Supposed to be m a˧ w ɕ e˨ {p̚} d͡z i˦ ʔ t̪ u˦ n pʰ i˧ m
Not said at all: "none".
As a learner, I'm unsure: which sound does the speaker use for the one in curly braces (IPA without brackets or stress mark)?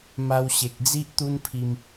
k̚